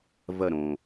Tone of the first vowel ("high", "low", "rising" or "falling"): falling